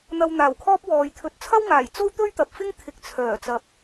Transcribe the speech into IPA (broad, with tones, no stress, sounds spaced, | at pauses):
n̪ ɐ˧ w n̪ aː˨˩ w kʰ ɔː˥ p̚ w ɔː˨˧ j t̪ʰ ɵ˨˥ t̚ t͡sʰ ɐ˥ w ŋ aː˨˩ j t͡s o˥ w t̪ ɵ˥ ɥ t̪ ɐ˨ p̚ f ɪ˥ ŋ t̪ʰ ɪ˨ k̚ t͡sʰ œː˨˩ t͡s ɐ˧ p̚